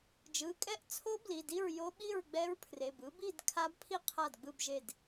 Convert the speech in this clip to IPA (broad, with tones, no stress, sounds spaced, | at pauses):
d͡ʒ ɯ˩˧˩ kʼ ɛ˥˨ ʔ t͡sʰ o˦˥ b l i˩˧˩ d i˥˨ ɹ j o˦˥ ɓ i˥˨ ɹ ɡ͡b ɛ˦˥ ɹ pʰ r e˩˧˩ b ɯ˦˥ b i˥˨ d kʰ a˦˥ b pʰ i˥˨ qʰ a˥˨ d ɡ͡b ɯ˥˨ b ʒ e˥˨ d